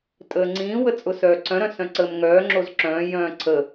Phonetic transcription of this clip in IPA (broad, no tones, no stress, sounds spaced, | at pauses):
tʼ əː ŋ͡ǀ ĩː w ə t͡sʼ ʊ s œː ǀ œ̃ ɾ œ̃ s œ̃ ǀ əː m ŋ œː ŋ͡ǁ o z ǁ œ̃ː j œ̃ː ǀʰ ə